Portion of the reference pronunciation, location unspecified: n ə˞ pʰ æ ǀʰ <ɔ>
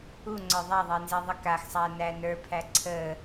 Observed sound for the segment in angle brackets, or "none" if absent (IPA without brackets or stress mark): ə